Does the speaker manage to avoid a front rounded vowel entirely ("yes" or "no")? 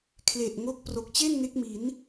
yes